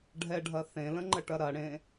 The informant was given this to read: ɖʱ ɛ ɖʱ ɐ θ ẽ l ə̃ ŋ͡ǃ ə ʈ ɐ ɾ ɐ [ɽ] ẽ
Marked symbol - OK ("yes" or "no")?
yes